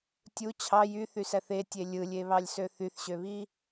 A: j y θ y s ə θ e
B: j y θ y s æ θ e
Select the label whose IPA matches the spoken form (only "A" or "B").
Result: B